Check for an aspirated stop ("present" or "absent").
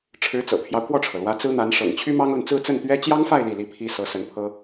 present